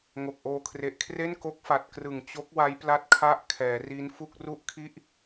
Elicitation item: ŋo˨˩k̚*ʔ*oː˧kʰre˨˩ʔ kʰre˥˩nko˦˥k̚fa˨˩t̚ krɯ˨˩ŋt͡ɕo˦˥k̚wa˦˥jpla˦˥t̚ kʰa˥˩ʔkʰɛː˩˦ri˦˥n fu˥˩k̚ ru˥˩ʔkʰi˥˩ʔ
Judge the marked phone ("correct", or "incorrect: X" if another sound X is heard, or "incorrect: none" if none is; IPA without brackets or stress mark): correct